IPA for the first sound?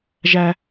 ʒ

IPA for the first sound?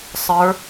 sˤ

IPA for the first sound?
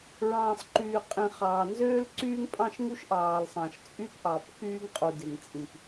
ɹ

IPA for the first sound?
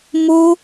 m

